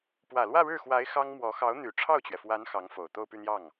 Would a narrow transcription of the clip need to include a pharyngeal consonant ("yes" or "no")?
no